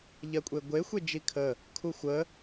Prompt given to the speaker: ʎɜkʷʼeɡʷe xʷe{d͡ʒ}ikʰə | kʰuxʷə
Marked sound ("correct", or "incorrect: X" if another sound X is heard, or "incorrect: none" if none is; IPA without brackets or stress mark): correct